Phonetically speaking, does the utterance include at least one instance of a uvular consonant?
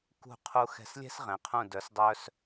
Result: yes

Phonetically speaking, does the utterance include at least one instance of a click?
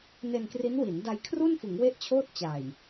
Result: no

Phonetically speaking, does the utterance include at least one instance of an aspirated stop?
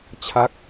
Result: yes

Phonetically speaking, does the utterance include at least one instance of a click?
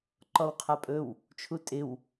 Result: yes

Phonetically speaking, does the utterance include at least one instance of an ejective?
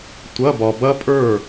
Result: yes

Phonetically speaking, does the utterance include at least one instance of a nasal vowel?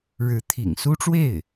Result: no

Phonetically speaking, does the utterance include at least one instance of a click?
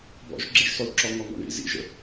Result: yes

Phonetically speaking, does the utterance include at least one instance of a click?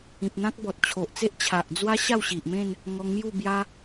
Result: no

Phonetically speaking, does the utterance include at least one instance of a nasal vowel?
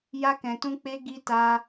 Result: yes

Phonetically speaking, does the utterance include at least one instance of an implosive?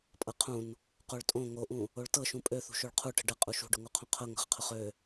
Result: no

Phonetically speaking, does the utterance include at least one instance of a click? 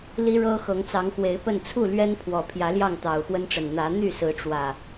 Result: no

